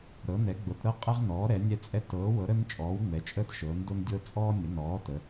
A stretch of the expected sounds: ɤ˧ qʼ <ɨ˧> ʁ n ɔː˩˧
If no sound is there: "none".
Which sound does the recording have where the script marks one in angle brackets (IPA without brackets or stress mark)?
ɛ˧